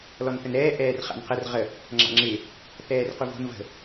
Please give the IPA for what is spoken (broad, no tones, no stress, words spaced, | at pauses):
lɔnθənɾɛː ʔɛːrχa̰nqər ʁə | ŋ͡ǁa̰ŋ͡ǁɪ | θɛːrquvo̤n və̤